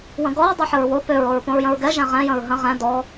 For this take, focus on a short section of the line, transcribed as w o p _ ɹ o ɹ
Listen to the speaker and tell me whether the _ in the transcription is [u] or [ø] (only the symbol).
ø